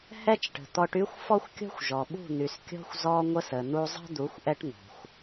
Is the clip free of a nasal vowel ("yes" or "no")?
yes